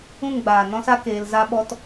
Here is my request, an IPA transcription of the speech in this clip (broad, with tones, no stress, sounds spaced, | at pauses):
ũ˦˨ ŋ ɡ͡b aː˨ n ɔ̃˦ s a˦ k eː˧ l z a˦ ɓ ɔ˦ t